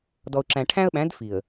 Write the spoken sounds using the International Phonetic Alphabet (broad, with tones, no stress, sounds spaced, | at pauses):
d ɔ˨ ʊ̯ ǁ æ̃˨ ʈʰ æ̃˦ ə̯ ɓ æ̃˨˦ d f i˨ ə̯